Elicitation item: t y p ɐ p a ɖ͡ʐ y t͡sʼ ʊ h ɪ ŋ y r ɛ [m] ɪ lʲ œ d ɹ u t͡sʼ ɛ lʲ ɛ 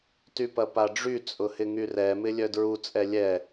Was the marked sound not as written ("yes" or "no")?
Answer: no